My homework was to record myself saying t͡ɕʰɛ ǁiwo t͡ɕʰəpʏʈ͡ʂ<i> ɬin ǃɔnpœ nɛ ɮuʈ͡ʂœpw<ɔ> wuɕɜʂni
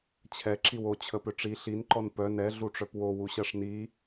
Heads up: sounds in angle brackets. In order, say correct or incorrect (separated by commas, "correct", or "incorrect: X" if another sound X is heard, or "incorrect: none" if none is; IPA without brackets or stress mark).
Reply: correct, incorrect: o